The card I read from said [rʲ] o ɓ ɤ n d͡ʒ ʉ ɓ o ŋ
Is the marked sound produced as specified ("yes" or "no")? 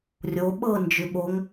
yes